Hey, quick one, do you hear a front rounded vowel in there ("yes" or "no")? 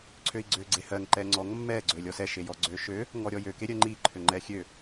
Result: yes